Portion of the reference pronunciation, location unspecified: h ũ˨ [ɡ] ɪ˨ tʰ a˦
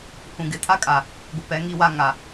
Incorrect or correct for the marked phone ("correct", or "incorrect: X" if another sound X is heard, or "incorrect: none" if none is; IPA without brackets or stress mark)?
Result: correct